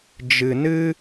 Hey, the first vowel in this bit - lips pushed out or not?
no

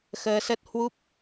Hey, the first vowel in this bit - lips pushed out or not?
no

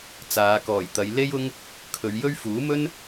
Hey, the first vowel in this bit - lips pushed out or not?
no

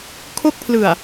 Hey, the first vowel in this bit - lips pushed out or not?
yes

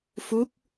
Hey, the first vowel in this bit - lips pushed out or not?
yes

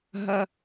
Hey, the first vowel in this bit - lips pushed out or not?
no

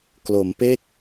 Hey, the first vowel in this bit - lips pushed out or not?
yes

